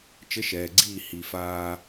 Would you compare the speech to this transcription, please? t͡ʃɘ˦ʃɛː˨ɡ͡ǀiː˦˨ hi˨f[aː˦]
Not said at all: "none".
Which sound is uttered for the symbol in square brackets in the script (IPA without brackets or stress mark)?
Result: aː˦